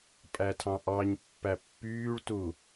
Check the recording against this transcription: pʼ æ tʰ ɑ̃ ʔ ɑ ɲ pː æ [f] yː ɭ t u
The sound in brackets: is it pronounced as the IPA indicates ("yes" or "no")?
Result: no